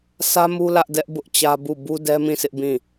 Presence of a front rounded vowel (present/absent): absent